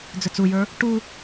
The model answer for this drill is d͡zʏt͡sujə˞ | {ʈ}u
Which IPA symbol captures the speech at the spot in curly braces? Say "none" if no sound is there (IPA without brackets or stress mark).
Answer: ʈ